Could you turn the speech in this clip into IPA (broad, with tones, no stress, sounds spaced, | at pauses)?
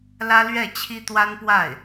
l ä˥ l ɥ ɛ˥˩ t͡ɕʰ i˥ t̪ w a˥ n p w a˥˩ ɪ̯